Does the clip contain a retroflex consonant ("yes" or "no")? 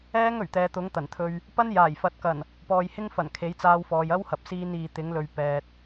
no